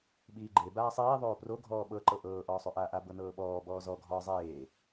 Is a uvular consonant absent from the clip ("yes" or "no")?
yes